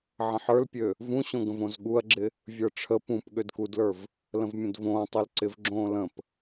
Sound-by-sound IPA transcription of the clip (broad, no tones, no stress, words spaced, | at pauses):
ʕə̃ħə˞lpʲø | vũɕõɡə̃v õzɠuɐ̯ɡ͡ǁɪ | vʲə˞ʈ͡ʂʰə pũp ɠødkudlə˞v | lə̃vmʲə̃dvõː tˤølǀɪv ɡ͡ǁõːlə̃p